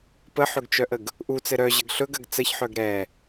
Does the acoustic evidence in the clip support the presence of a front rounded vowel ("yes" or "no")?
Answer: yes